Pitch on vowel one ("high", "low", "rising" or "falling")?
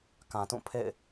low